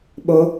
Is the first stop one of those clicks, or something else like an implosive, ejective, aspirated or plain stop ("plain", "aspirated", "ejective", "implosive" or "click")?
implosive